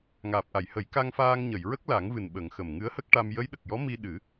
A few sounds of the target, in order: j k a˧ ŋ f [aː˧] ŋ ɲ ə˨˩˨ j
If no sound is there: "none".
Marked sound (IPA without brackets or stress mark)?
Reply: aː˧